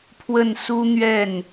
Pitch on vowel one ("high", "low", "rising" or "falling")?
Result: falling